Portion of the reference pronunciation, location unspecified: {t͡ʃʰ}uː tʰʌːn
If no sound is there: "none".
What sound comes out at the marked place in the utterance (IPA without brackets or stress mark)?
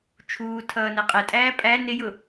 t͡ʃʰ